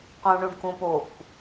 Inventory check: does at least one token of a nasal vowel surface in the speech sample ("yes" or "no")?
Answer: yes